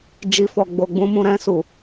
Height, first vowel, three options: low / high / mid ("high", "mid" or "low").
high